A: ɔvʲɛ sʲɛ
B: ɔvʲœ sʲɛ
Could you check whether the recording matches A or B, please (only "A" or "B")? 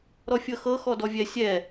A